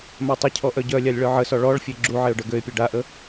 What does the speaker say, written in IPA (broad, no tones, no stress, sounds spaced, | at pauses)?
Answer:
m a tˤ ə cʰ ɔ ʔ œ ɟ œ lʲ a lʲ ɭ œ ʕ ə s ɔ ɭ ɔ ɭ fʲ e ɡ͡ǁ u ʕ e ʊ̯ ɖ œ ɡ ø ɪ̯ pʲ ø ɖ a ʔ ə